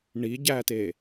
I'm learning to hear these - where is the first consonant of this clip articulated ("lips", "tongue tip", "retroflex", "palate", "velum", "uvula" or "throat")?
retroflex